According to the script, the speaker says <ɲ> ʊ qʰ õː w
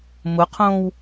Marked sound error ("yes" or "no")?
yes